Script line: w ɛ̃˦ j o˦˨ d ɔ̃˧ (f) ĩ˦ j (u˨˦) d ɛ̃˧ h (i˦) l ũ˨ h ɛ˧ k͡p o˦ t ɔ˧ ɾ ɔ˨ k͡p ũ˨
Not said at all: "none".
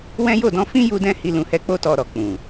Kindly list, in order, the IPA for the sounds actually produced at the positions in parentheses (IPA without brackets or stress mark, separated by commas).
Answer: f, u˧, i˧